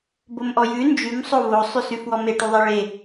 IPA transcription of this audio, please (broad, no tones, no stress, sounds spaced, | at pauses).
b o m ʔ ɔ j ʉ n d͡ʒ ʉ m sˤ o v o sˤ ʉ s ʉ f w ɔ m e ʈ u ðˤ e ɭ e